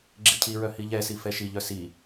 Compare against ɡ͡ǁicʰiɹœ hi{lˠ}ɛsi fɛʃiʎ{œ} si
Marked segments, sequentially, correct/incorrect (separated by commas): incorrect, correct